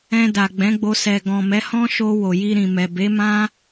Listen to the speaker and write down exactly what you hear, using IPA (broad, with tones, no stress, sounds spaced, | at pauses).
ɛ̃˧ d a˨ ɡ͡b ɛ̃˨˦ ɡ͡b o˧ s ɛ˨ ɡ ɔ̃˨ m ɛ˨˦ h ɔ̃˦ ʃ o˧ w o˨ j i˧ ɾ ĩ˨ m ɛ˨ b e˨˦ m ã˦